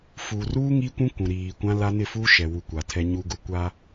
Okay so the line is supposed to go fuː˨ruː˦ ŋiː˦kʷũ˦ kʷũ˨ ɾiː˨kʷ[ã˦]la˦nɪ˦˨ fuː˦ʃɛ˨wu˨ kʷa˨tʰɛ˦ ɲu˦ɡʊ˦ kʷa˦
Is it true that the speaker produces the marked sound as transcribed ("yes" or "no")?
yes